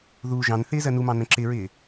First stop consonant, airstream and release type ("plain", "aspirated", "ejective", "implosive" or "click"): click